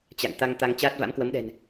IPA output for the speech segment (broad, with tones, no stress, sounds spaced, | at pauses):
t͡ɕ a̰˧˨ ŋ t̪ a˧ ŋ t̪ a˧ ŋ t͡ɕ aː˦˥ t̚ v a̰˧˥ m k w ə˨˦ m ɗ ɛ̤˨˩ n